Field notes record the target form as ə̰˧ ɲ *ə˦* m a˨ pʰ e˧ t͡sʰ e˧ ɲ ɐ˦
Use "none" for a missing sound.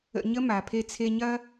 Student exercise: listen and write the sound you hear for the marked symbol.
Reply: ə˦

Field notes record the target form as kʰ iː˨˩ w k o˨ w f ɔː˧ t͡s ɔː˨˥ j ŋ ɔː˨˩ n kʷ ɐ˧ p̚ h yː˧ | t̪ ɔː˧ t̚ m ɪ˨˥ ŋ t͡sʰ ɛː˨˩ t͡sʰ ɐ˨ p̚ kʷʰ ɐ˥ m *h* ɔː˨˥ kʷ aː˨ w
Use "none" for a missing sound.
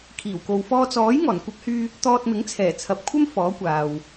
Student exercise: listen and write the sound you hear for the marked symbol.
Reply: f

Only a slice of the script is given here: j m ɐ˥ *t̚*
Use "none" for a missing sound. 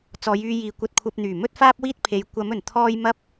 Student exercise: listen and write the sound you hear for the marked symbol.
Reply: p̚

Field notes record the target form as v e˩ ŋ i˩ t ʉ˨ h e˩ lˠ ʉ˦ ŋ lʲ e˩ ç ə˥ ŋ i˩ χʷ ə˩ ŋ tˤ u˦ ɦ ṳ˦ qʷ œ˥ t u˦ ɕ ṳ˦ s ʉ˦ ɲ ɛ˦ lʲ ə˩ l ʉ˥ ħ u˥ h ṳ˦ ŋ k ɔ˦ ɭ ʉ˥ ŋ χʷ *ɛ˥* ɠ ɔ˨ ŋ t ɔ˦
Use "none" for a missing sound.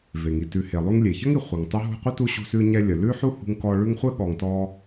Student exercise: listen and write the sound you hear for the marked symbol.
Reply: ɛ˥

